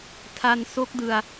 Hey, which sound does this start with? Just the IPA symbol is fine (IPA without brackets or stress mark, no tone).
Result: tʰ